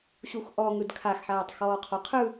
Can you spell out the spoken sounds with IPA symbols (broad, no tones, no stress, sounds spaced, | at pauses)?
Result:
ɕ u x ʔ ɔ ŋ ɯ d kʰ a x ħ aː tˤ x ɔː qʰ ɔ qʰ ɯ